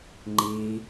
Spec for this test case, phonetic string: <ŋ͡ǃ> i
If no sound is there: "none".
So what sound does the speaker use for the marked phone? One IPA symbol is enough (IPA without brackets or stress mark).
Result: ŋ͡ǃ